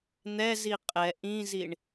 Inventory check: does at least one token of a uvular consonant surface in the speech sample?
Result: yes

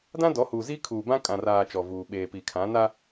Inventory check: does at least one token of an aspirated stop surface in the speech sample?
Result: yes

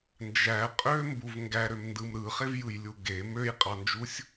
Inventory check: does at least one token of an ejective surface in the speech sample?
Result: yes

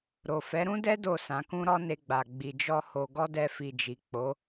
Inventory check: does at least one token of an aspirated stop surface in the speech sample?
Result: no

